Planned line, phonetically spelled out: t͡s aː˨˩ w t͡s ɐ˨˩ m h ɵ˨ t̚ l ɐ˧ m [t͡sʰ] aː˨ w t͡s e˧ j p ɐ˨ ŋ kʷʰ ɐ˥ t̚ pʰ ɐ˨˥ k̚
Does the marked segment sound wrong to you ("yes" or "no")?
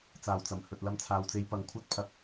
no